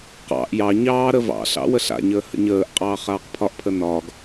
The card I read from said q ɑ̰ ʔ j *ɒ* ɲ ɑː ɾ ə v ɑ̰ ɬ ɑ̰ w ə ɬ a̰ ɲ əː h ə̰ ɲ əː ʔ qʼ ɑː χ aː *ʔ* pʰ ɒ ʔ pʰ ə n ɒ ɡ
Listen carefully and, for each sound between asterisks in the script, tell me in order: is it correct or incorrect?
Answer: incorrect, incorrect

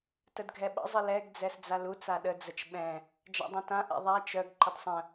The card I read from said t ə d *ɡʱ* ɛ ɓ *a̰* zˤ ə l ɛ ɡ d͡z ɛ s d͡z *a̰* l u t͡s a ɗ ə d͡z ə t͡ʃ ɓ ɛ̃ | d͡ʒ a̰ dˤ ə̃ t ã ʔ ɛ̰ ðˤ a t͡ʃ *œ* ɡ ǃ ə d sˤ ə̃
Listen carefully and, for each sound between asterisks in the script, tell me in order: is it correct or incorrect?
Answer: correct, incorrect, incorrect, correct

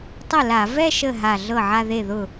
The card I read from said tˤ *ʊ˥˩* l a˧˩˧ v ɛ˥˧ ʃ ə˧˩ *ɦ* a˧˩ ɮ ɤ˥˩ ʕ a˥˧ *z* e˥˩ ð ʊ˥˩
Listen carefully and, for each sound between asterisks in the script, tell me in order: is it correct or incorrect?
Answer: correct, correct, incorrect

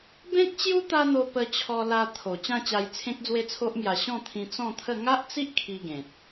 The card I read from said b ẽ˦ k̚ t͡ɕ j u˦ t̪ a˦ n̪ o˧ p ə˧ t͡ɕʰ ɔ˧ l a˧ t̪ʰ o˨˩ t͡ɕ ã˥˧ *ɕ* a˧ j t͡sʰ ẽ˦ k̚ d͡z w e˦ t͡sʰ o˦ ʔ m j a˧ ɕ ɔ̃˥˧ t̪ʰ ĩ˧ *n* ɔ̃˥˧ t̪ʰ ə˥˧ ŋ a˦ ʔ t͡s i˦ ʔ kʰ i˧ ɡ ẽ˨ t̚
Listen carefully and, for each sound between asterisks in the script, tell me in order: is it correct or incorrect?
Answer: incorrect, incorrect

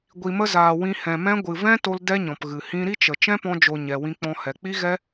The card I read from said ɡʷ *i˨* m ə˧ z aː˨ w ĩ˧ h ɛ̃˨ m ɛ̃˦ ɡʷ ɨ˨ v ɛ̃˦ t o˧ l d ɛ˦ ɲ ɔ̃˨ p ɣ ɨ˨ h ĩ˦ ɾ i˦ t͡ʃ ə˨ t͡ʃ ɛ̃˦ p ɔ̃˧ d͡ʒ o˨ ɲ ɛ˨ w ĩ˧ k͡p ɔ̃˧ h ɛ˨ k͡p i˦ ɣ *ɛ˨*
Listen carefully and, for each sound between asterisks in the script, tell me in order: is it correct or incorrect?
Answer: correct, incorrect

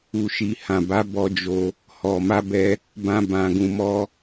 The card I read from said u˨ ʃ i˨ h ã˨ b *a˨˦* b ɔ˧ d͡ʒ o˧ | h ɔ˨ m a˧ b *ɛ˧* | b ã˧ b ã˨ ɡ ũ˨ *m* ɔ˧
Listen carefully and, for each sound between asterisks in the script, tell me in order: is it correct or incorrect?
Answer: correct, correct, correct

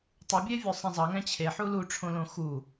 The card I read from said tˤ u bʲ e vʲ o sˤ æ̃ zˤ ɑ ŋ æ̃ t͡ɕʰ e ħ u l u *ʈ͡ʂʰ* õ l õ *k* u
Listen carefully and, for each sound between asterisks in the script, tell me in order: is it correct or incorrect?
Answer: correct, incorrect

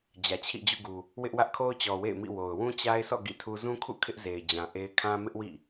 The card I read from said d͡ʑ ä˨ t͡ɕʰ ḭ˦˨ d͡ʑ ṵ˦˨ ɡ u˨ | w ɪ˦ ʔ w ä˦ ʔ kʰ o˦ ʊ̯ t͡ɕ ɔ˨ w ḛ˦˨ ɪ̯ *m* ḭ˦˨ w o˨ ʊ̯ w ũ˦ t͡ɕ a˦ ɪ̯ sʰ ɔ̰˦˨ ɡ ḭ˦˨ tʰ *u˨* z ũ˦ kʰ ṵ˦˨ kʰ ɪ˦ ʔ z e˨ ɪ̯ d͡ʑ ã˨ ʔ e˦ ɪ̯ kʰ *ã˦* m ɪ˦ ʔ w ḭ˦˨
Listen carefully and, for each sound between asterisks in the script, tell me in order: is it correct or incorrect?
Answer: correct, incorrect, correct

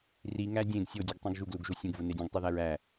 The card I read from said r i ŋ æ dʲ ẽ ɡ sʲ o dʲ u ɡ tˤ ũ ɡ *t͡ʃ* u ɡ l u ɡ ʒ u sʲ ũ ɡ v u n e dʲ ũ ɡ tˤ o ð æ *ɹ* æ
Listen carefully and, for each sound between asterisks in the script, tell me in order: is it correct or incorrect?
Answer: incorrect, correct

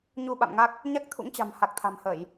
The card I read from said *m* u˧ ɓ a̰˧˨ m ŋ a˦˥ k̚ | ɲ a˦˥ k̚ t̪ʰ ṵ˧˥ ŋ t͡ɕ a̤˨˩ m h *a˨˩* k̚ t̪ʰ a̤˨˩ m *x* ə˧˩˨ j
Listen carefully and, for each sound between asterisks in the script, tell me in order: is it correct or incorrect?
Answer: incorrect, correct, incorrect

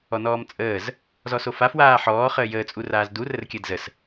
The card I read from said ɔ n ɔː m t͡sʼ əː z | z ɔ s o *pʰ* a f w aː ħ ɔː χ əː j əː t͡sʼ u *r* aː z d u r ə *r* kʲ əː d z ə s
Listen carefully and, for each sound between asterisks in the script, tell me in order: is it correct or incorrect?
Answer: incorrect, correct, correct

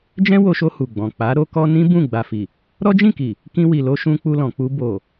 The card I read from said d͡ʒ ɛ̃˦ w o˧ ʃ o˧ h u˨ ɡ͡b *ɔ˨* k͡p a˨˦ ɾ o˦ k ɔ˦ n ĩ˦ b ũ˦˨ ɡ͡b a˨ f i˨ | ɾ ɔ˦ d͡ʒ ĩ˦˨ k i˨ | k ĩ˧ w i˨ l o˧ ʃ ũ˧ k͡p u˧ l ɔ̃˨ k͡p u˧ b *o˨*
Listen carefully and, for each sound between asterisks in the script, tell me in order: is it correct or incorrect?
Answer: incorrect, correct

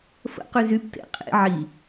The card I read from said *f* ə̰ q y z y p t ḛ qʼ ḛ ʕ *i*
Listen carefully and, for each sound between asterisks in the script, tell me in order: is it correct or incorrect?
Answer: correct, correct

